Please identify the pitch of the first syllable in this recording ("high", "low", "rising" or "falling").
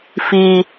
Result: low